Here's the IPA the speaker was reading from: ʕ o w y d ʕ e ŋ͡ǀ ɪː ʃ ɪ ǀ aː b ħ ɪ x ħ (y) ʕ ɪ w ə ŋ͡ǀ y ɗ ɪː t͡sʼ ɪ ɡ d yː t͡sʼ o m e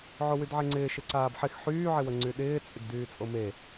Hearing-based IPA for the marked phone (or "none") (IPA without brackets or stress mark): yː